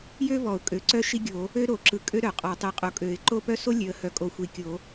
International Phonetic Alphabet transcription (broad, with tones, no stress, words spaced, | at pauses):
jø˥vɔ˨˩˦ʊ̯ kʼø˨˩˦ǀœ˥ ʃi˥ɡʲo˨˩˦ | ø˥ɾo˨˩˦ǁɯ˨ kʼø˥ ɾœ˨˩˦qʼɔ˨˩˦tˤi˨ qʼo˨kʼø˨˩˦ɪ̯ ǃo˥pœ˥ so˥ lʲø˨ə̯hœ˨˩˦kʼo˨ xʷi˨˩˦ kʲo˨˩˦